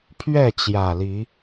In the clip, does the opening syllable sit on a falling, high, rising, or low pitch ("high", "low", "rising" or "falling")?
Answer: falling